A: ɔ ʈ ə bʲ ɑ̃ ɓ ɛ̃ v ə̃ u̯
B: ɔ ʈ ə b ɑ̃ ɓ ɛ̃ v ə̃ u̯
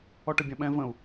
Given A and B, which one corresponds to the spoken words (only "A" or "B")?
A